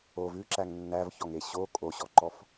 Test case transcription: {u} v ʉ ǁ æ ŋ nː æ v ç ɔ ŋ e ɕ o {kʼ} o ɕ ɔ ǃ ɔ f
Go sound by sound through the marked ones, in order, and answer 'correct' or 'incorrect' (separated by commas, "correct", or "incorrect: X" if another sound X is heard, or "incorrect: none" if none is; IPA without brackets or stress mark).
incorrect: o, correct